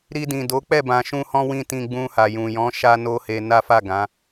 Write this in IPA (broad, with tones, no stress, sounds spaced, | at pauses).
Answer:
ɾ i˧ d ĩ˨ d o˨˦ k͡p ɛ˦˨ b ã˨ ʃ ũ˧ h ɔ̃˦ w ĩ˦˨ t ĩ˧ ɡ͡b ũ˧ h a˨ j ũ˨ j ɔ̃˨˦ ʃ a˧ n o˦ h e˧ n a˦ f a˦˨ ɡ ã˨˦